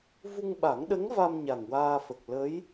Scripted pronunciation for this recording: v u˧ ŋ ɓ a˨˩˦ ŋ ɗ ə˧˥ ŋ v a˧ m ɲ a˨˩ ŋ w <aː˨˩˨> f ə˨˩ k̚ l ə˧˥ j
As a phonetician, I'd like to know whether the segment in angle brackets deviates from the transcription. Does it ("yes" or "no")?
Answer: yes